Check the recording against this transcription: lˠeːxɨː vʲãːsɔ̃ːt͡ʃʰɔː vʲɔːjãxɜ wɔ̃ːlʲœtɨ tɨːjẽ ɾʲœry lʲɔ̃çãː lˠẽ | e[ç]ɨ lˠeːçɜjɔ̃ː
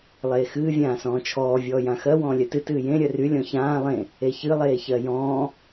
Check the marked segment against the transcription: correct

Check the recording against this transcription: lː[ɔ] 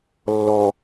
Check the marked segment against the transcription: correct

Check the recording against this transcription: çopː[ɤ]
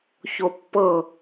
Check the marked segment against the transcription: correct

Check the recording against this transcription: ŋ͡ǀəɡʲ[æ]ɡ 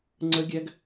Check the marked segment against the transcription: correct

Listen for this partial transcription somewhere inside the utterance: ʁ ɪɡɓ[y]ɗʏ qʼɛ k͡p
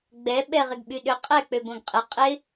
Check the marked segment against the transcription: correct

